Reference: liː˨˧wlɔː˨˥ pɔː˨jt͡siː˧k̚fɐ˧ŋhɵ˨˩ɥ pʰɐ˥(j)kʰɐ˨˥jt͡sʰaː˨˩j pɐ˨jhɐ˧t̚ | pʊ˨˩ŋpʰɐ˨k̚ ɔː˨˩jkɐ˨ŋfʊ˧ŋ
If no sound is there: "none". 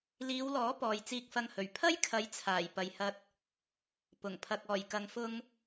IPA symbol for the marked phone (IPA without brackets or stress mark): j